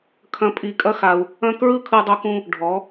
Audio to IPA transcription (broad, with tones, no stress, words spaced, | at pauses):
kʰɐ̃˧ pʼi˧˩kʼɐ˥xa˧u̯ | ɐ̃˥ kɹɯ˥˧kʰɯ˧dˤo˧kũ˧ | ɖʱɔ˩˧